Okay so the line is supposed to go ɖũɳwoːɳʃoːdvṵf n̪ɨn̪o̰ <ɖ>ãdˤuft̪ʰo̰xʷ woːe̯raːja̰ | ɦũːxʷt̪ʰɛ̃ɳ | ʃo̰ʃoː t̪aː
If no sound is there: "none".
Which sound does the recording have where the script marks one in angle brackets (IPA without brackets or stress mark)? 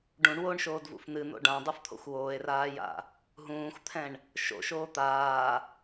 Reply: ɖ